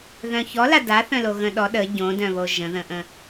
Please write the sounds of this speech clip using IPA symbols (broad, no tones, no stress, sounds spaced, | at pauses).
ð œ̃ ç ɔ l a d a θ œ̃ l o ɣ ə̃ ɗ ɔ ɗ ə ɟ õ d œ̃ β o ʒ ə̃ ð ə̃ ʔ ə̃